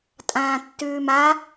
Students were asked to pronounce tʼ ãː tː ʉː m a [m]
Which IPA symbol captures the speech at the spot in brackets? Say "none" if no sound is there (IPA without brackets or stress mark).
none